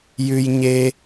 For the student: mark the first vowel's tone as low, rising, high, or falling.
high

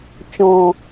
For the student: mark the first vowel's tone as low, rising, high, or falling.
low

